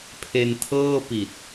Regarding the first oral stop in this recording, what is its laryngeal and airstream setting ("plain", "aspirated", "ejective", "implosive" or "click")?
aspirated